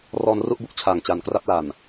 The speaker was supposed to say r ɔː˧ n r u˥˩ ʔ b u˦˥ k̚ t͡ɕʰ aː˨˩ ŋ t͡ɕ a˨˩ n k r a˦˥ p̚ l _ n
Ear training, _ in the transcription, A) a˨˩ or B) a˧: A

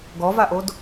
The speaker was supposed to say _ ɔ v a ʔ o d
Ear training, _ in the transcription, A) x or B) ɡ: B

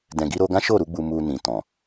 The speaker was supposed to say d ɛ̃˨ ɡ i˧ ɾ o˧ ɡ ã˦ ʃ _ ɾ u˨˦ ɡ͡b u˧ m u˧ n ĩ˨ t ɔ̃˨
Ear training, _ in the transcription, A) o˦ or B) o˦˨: B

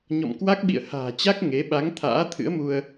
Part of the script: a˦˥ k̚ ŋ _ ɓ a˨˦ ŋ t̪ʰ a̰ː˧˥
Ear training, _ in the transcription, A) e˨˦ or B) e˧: A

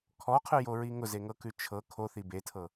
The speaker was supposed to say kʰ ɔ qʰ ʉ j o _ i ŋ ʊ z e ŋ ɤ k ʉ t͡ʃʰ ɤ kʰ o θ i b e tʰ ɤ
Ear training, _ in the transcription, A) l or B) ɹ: B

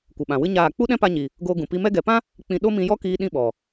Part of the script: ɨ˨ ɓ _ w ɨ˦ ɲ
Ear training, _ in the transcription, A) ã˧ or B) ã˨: B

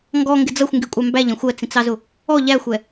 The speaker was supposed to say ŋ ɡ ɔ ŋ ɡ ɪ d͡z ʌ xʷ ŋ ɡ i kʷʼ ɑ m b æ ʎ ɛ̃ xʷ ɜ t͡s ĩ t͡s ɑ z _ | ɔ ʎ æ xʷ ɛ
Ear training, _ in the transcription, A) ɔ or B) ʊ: B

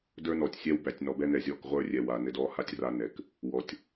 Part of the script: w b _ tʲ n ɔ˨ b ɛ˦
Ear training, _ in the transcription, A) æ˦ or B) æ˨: B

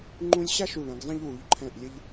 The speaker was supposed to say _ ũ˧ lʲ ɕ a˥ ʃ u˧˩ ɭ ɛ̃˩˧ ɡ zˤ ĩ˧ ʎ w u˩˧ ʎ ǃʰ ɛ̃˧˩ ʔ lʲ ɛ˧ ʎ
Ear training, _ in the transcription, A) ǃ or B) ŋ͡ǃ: B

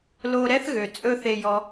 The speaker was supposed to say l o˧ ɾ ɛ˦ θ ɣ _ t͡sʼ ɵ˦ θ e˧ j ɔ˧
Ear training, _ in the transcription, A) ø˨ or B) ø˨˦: A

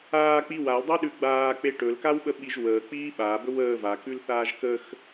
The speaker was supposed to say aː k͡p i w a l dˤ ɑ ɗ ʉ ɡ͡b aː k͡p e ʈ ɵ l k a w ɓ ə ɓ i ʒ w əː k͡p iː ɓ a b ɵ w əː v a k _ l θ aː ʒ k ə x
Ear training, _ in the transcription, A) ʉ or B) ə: A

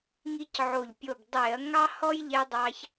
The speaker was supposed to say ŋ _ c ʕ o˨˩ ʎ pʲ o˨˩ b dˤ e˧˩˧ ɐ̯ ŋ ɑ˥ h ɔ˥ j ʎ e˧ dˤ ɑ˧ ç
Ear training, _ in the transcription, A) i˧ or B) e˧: A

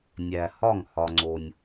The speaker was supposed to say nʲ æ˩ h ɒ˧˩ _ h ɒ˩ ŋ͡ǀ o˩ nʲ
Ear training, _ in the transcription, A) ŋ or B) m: A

